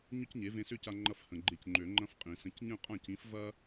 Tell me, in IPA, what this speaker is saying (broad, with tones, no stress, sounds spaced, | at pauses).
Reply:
ɲ ʏ˥ c ɲ e˩˥ v ẽ˧ s ʏ˥˩ c a˧ ŋ͡ǃ ɐ˧ f h ə̃˩ ɡ͡ǃ e˧ c ŋ͡ǃ ø˨˩˦ ŋ͡ǃ ɐ̃˥ f qʼ ĩ˨˩˦ s ə̃˩˥ c ɲ ə̃˥˩ qʼ ã˥˩ c ĩ˩˥ f v ɐ˥